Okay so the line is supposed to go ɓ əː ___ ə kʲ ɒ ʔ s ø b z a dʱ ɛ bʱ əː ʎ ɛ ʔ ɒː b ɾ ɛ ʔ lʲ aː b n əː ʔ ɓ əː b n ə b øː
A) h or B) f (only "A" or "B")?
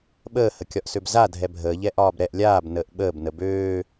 A